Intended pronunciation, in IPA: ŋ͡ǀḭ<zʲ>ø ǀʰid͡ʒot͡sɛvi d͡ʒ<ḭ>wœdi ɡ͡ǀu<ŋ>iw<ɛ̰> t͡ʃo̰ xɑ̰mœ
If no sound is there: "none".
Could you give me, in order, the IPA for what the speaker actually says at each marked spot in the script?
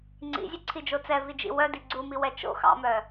zʲ, ḭ, m, ɛ

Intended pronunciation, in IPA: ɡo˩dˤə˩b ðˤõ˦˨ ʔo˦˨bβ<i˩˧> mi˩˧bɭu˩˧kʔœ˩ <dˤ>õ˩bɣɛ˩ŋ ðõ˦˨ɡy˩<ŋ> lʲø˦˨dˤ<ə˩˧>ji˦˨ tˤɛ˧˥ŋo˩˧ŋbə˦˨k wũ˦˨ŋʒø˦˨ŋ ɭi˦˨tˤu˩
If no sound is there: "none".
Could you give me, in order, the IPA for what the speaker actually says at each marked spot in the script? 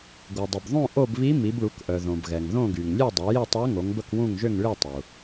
i˧˥, ð, ŋ, œ˩˧

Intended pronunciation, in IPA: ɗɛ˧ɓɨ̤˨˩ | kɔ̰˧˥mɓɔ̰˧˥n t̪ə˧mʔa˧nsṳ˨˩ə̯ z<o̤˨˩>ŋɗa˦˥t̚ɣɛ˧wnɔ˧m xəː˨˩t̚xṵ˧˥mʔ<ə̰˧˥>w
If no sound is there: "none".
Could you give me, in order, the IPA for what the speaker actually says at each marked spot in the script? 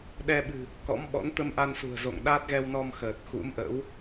o̰˧˨, ə̰˧˥

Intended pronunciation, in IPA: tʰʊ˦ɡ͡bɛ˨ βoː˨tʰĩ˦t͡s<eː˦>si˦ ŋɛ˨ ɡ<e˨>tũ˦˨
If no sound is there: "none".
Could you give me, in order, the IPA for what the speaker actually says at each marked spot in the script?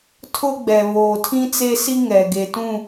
e˦, e˨

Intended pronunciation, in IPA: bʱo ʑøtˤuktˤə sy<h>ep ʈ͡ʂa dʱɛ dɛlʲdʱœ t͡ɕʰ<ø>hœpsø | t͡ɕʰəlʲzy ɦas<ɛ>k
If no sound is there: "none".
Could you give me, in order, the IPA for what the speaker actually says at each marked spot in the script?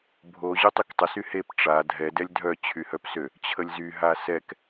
h, y, ɛ

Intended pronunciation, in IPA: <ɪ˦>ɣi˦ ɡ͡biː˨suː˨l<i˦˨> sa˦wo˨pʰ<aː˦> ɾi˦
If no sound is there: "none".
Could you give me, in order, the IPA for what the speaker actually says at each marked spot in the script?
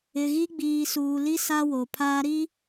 ɪ˨, i˦, aː˦

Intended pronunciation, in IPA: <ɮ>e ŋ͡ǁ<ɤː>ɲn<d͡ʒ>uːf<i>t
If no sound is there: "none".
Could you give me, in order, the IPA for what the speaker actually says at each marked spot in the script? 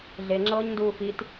ɮ, ɤː, d, i

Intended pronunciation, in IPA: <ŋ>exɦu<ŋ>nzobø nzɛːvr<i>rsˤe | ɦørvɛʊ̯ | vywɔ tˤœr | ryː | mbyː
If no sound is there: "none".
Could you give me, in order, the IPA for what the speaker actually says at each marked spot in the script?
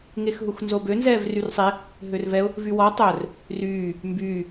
ŋ, x, y

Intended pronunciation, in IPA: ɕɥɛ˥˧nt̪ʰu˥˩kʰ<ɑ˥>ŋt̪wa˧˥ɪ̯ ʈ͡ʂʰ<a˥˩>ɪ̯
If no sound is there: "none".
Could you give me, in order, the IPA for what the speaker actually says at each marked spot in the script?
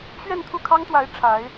ɑ˥, a˧˥

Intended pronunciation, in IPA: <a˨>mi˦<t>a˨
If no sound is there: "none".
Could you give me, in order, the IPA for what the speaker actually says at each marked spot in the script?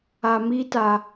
a˨, t

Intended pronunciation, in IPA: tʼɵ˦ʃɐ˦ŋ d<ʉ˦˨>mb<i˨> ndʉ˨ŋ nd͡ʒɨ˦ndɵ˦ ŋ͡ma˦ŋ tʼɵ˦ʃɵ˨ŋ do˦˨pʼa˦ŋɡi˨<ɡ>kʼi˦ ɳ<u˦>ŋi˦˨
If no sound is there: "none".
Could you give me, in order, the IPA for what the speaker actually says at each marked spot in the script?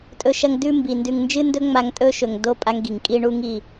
ʉ˦, i˨, ŋ, u˦

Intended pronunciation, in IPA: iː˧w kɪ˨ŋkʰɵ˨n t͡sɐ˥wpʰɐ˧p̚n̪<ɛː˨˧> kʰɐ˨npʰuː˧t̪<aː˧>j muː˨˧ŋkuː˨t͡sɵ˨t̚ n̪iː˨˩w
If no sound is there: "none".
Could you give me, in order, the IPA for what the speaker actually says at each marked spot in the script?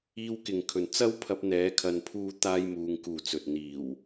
ɛː˨˧, aː˧

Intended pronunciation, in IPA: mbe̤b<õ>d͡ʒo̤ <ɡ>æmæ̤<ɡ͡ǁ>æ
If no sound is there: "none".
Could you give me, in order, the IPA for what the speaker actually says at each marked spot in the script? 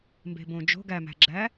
õ, ɡ, ɡ͡ǁ

